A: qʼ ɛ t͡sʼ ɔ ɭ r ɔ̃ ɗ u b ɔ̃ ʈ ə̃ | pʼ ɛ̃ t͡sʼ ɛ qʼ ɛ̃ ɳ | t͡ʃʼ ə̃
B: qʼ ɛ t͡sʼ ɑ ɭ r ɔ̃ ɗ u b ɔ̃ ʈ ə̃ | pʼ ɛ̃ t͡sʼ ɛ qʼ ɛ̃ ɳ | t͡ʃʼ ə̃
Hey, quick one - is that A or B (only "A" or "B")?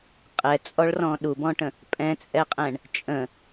A